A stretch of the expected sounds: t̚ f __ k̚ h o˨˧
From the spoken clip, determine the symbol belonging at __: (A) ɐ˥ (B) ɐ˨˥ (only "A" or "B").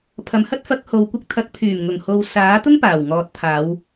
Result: B